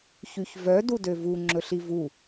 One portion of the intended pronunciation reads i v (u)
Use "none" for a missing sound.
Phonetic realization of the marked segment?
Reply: u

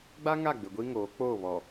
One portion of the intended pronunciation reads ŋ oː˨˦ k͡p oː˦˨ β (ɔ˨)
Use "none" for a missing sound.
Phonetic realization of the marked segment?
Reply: ɔ˨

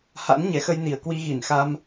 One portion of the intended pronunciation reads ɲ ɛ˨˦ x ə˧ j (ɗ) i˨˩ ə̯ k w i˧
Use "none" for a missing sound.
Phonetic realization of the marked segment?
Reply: n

